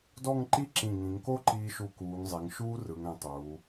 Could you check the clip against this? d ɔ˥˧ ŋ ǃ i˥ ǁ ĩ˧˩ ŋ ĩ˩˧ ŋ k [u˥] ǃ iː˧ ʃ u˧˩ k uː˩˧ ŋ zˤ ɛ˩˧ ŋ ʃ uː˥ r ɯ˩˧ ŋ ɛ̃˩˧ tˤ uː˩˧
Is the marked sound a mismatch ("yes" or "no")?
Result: yes